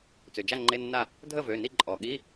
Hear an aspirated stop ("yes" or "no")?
no